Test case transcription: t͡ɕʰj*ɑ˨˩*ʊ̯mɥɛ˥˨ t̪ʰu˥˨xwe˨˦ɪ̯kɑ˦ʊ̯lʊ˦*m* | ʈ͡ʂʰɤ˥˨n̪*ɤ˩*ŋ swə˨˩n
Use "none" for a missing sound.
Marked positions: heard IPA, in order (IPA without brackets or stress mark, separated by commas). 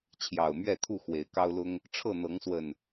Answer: ɑ˨˩, ŋ, ɤ˨˦